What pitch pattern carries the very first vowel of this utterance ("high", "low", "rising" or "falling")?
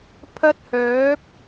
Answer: high